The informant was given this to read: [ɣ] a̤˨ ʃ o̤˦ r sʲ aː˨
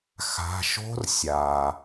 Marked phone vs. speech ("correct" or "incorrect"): incorrect